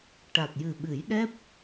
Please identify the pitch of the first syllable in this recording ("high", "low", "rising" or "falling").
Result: low